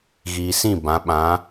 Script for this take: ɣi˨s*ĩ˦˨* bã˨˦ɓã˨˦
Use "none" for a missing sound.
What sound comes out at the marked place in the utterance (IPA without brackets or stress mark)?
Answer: ĩ˦˨